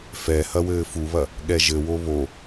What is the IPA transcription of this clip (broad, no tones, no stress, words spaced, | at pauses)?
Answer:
fɛ hɐwɘːfuβɐ | ɠɛʒɘwo βo